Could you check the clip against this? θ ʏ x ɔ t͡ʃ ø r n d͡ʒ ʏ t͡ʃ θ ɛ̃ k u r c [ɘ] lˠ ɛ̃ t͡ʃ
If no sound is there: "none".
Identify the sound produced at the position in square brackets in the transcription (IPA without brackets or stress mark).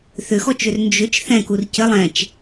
ɘ